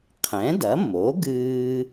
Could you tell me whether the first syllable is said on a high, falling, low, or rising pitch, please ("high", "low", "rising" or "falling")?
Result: rising